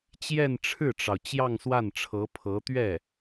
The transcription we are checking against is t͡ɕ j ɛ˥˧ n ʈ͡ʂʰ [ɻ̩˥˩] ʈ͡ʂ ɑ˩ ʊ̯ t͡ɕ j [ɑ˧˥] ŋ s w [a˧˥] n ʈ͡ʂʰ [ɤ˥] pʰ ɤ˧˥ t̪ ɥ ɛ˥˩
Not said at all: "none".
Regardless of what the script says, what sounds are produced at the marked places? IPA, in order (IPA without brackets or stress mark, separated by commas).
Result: ɻ̩˥˩, ɑ˥˧, a˥˩, ɤ˧˥